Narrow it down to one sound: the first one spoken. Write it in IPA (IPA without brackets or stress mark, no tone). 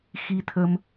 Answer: x